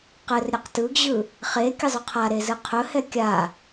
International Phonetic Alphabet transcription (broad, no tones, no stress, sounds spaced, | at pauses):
q ɘ r ɾʲ ɘ q t ɯ ɡ ʑ ɯ | χ e kʲ ɘ zˤ ɵ qʰ a ɾ e z ɯ qʰ ɵ h ɛ kʲ a